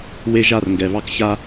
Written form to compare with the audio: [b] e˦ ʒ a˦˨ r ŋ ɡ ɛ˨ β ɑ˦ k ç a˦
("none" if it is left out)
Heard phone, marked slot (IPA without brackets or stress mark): w